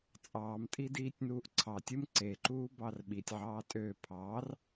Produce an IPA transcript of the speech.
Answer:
t͡sʼɑːmtʼi diːtʲnuːʔǀʰɑtʲɯm ǀeǃuː bɑrɓitʲʕɑː tʼø pʰɑr

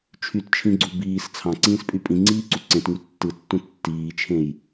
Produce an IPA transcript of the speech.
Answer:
t͡ʃʰytt͡ʃʰĩɡ͡ǀu biːs t͡sʰɑ̃ǀĩːspʼy pʼĩŋ͡ǀiːǀu ǀẽtŋy tːɯtːũ tːiːt͡ʃʰẽj

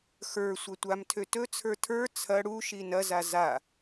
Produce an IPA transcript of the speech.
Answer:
xə˞ sʷɐtʷamtʰø tɵt͡sʰə˞ tʰə˞ t͡sʰɐ ɽuʃi nɐza za

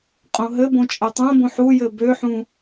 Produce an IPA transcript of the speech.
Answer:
qʼõɦɘbõ t͡ʃʼɘtˤõbõħ ujɘ bøħũ

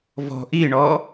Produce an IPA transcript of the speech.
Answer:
vɔ̤ ʔiɳɔ

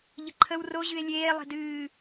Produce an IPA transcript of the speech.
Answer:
ʎəǃʰəw ro ʑɨe̯lʲeː lˠe̤dɨː

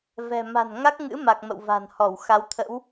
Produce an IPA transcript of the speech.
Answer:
vɛ̤˨˩ ma̤˨˩nŋa˦˥k̚ŋɨ̰˧˥ ma˨˩k̚mə̰˧˨w va̤˨˩n hɔ˧˩w xa˨˦wt̪ʰə̰˧˥w

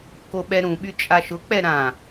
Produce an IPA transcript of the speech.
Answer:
koɓɛɾũɓy t͡ʃʼaʃʊk͡pɛ ɾã

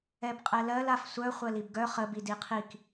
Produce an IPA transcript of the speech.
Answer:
ɛbqʼɛlɜl afsʷœ χʷɜlibɡœ χə bidiqʰik

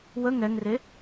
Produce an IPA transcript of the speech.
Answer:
wə ŋɛŋre

